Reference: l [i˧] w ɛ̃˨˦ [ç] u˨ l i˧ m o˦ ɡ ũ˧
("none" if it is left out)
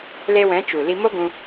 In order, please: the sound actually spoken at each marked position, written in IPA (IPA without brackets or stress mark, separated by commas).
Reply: e˧, t͡ʃ